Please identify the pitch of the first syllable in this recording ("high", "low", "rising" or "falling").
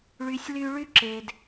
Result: high